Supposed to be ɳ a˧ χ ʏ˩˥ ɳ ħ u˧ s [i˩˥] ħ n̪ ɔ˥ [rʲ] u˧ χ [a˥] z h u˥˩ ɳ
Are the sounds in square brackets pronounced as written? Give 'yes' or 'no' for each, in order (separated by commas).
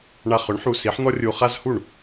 yes, yes, yes